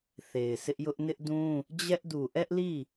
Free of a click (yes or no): yes